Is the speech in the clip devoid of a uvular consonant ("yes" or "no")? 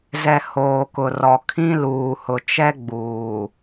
yes